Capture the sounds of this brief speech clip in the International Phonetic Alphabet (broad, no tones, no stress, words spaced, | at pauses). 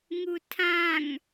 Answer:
ŋutʰãŋ